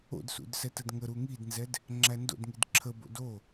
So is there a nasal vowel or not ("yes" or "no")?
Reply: no